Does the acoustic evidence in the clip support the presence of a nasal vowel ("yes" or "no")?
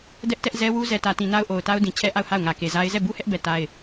yes